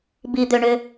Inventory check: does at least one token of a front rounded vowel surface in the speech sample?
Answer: yes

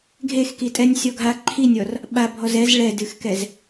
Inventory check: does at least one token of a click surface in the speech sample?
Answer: yes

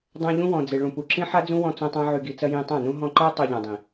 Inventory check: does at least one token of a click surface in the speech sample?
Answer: yes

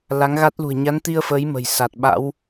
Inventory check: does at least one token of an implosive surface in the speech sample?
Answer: yes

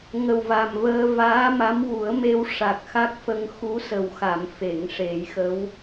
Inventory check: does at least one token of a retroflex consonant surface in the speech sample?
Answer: yes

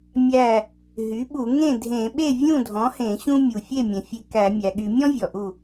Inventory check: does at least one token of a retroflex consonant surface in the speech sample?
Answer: no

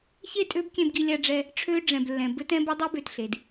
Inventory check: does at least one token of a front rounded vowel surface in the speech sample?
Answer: yes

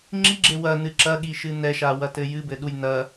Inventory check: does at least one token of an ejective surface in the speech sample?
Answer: no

